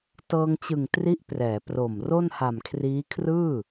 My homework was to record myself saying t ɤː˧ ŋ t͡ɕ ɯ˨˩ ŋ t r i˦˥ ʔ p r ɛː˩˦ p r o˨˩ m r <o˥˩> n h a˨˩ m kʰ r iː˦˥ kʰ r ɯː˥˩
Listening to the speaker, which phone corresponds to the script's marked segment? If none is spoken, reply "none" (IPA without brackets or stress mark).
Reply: o˥˩